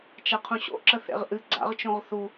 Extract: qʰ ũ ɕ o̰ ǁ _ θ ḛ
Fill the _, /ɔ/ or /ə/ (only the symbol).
ə